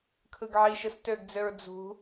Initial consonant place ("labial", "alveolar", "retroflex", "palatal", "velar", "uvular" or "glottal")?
velar